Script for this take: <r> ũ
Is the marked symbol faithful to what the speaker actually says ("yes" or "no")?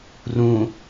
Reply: yes